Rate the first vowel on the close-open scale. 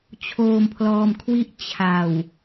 mid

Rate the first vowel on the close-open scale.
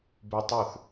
close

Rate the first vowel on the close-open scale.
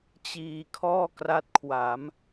close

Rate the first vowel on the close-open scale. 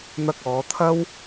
open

